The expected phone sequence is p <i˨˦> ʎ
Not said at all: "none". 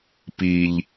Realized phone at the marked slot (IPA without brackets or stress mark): i˦